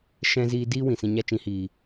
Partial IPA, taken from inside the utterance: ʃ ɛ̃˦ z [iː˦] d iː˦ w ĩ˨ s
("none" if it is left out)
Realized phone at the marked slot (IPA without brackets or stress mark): iː˦